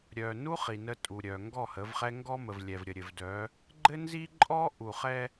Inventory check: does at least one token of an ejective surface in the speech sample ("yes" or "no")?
yes